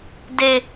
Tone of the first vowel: high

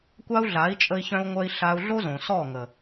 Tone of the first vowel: high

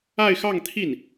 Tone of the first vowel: falling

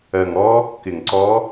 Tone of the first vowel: low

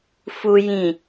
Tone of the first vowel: low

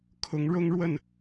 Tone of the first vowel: rising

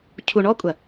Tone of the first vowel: low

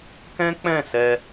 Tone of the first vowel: high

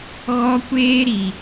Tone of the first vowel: high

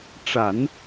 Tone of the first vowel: low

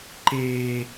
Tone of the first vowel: high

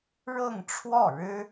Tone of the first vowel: falling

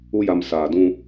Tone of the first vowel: high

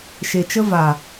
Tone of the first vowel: low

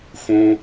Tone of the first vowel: high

